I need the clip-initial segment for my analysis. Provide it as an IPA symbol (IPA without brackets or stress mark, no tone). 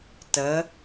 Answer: t